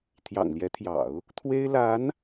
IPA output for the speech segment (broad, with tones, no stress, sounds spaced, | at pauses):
t̪ʰ j ɑ̰˨˩ ŋ l j ɛ˧˥ t̪ʰ j ɑ̰˨˩˦ ʊ̯ | t̪ʰ w e˥ ɪ̯ l a˧˥ n